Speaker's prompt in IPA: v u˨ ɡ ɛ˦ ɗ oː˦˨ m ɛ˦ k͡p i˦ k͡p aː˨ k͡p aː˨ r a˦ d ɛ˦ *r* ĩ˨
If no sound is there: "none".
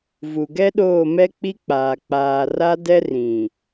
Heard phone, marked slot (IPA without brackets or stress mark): r